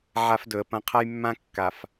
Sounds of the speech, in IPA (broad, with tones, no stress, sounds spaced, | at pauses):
ʕ a˦ f d ɵ˨ ə̯ p ɐ̃˦ qʰ a˦ j mː ã˦ kː a˨ f